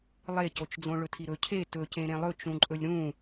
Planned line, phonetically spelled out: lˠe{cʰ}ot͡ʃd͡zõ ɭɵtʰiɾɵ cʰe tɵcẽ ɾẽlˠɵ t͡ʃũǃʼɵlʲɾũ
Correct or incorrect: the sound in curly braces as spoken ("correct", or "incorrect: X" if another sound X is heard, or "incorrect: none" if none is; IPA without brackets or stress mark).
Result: incorrect: c